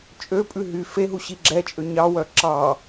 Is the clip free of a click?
no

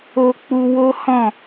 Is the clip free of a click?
yes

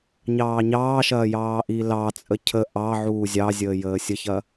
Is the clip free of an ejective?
no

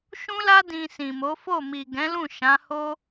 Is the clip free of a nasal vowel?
no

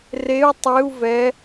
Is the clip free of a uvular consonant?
yes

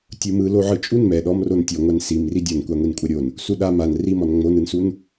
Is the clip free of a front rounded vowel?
yes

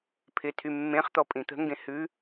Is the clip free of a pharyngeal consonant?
yes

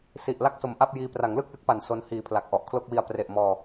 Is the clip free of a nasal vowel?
yes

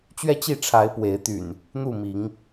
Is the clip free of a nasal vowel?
yes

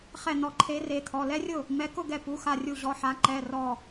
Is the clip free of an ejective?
yes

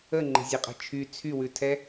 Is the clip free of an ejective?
no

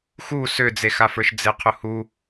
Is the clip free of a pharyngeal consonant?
yes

